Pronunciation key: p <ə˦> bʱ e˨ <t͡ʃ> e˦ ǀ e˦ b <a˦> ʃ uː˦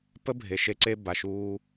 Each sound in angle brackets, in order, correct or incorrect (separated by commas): correct, incorrect, incorrect